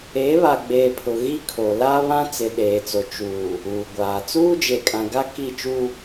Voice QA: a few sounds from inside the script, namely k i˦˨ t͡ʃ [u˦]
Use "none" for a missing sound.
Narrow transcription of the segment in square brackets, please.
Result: u˦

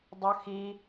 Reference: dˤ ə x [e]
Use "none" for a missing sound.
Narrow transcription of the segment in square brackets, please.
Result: i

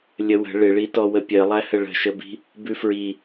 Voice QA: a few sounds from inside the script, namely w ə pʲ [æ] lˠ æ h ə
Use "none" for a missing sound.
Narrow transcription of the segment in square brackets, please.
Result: ɜ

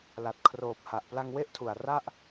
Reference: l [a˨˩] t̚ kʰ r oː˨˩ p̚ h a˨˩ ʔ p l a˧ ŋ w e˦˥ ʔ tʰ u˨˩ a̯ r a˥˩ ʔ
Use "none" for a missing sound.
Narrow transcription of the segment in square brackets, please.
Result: a˨˩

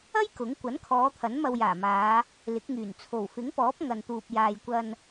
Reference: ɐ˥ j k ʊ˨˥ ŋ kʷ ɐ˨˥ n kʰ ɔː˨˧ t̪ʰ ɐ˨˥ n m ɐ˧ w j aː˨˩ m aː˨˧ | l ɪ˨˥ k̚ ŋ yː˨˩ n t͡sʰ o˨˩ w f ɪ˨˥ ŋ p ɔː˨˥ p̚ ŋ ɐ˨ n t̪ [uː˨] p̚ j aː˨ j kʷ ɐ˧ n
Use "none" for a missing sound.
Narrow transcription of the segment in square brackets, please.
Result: uː˨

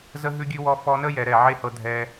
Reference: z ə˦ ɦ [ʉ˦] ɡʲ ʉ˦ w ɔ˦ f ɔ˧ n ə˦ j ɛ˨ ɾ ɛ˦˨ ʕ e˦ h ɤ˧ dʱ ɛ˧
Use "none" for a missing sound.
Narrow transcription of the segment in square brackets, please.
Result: ʉ˦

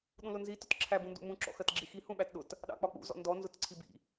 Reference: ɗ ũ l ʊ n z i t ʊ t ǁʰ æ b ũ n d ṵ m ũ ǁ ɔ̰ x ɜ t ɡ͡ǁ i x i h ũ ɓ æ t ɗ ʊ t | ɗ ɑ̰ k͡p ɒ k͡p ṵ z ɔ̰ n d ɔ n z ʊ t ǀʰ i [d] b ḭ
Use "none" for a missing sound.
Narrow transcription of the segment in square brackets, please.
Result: none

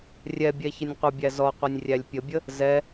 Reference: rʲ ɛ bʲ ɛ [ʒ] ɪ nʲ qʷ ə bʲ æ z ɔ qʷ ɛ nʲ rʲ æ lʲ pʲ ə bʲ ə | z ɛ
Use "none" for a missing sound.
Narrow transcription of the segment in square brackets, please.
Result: ç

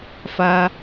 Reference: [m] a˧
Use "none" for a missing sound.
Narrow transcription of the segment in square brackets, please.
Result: f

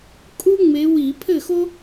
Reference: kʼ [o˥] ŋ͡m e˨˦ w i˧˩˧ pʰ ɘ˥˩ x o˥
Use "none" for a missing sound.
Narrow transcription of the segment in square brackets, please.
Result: u˥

